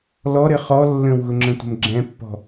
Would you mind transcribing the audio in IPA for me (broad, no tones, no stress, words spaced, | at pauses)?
lɔɾɘ χɔ lːə̃wɣʊŋ͡ǁə̃tʷə̤m ɡ͡ǁɛ̃pːɔ̤